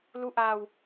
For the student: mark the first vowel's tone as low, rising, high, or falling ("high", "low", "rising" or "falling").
rising